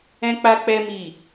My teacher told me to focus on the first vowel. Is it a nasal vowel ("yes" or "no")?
yes